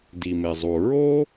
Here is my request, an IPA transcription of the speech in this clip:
d i˩ m e˩ zˤ u˩ ɹ o˥

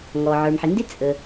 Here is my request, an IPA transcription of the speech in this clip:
ŋ ɔ˩ ʕ ə˞˩ m ħ i˩ n d ɪ˥ t͡sʼ ə˩

